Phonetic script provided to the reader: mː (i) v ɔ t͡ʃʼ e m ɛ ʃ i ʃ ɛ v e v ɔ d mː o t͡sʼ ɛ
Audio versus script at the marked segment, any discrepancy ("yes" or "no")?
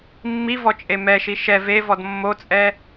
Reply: no